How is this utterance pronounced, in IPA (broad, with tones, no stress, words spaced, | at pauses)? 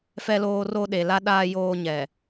fɛ˦loː˦ro˦ ɗe˨la˦ ɗaː˦ joː˦ɲɛ˨